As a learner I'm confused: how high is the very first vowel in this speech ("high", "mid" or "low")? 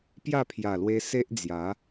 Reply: low